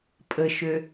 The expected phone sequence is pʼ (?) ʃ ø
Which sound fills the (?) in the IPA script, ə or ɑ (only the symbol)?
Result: ə